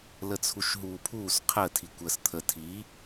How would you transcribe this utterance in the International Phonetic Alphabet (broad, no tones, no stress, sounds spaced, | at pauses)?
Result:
l ə t͡sʰ u ʃ ɦ uː pʰ uː s qʰ ə tʰ i kʷ əː s t̪ʰ ə tʰ i